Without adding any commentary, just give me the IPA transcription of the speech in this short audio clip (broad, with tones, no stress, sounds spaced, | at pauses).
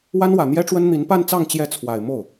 w a˥ n w ä˨˩ n̪ j ɛ˥ ʈ͡ʂ w ə˥ n n̪ i˧˥ n p a˥˧ n t͡s ɑ˥˧ ŋ t͡ɕ j ɛ˥˩ t͡sʰ w a˨˩ ɪ̯ m o˥˩ ʊ̯